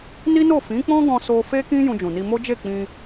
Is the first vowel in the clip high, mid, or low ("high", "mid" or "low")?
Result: high